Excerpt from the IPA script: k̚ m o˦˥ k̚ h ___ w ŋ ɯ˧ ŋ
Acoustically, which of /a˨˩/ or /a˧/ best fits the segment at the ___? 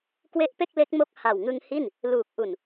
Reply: a˨˩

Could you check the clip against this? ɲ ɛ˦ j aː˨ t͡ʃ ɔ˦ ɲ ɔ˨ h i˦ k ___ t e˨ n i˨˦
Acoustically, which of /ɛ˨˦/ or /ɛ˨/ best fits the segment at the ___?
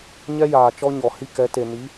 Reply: ɛ˨˦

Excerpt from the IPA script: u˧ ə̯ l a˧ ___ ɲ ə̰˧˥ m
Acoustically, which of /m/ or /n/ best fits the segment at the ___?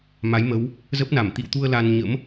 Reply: n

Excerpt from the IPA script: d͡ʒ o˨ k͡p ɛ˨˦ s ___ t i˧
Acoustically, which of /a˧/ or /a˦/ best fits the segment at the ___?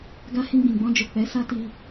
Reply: a˦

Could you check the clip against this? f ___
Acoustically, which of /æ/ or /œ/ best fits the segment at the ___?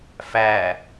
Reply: æ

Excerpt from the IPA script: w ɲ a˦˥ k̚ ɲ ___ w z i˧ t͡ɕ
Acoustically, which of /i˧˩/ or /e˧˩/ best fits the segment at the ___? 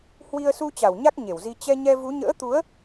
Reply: e˧˩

